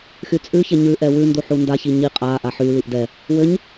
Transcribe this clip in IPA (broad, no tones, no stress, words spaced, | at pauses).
xyt͡sʼʉçɛ ɲʉʔɛ wʉndu ħundaçi ɲi qʼaʔa ħyliʔ dɛ | wɘɲ